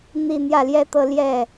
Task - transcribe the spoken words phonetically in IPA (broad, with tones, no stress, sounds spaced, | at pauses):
n̪ i˥˧ n̪ j ä˥˩ l j ɛ˥ t̪ ɤ˥˧ l j ɛ˥˩